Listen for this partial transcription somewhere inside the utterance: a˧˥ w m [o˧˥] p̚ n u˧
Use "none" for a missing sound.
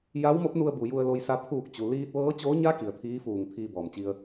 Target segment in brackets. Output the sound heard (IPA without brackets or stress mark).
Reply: o˧˥